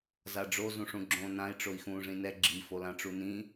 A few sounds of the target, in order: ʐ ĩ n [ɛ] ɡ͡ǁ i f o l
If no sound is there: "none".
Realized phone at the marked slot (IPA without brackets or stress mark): ɛ